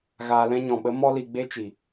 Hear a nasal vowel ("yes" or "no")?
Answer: yes